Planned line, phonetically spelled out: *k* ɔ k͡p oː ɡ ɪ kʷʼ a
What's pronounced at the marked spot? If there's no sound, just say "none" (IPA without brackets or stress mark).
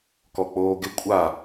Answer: k